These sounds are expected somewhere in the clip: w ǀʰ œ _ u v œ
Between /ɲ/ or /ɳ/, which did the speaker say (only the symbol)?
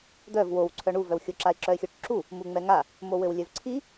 ɳ